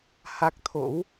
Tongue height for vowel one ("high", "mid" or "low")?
low